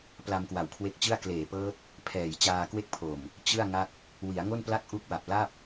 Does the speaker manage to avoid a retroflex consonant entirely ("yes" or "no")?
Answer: yes